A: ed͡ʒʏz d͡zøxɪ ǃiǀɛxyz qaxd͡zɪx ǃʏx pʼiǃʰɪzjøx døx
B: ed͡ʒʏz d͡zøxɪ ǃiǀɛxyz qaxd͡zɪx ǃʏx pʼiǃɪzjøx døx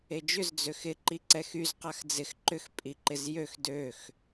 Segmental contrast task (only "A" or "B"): B